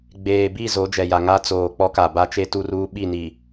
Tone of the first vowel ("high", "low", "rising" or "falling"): low